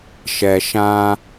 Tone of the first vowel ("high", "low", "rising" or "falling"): low